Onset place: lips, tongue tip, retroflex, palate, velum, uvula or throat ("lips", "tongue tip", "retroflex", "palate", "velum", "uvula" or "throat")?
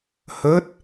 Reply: throat